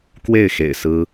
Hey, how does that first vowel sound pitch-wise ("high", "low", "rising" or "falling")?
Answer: falling